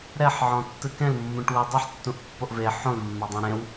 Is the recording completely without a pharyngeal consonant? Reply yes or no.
no